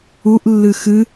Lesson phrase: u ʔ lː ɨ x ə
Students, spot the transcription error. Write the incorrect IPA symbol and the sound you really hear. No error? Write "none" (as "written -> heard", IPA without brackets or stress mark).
ə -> ɨ